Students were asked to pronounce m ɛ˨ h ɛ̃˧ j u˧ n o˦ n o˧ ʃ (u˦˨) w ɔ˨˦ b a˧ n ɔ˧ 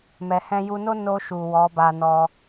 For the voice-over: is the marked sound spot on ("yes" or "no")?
no